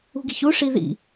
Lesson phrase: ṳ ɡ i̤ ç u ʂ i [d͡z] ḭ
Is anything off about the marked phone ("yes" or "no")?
yes